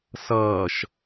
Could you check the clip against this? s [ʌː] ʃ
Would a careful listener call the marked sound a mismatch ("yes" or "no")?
no